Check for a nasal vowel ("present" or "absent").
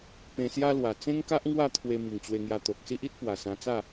present